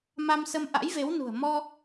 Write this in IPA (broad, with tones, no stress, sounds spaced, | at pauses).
m a˧ m s ə˧ m ʔ a̰˧˥ j v e˨˦ w n ṳ˨˩ ə̯ m ɔ˧